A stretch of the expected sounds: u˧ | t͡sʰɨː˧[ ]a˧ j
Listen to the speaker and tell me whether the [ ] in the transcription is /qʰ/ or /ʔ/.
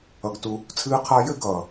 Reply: qʰ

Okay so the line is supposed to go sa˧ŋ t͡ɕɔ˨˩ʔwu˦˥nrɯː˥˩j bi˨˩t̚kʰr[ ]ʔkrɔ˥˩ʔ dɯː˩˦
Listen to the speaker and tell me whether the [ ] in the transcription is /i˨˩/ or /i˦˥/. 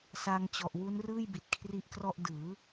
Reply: i˦˥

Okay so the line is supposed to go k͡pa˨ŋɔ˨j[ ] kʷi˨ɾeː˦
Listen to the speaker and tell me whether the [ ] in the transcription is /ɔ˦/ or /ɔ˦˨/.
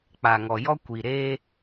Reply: ɔ˦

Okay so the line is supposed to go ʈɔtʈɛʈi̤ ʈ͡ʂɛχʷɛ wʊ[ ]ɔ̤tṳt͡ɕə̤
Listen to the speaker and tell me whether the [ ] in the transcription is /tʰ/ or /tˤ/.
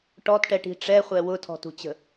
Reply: tʰ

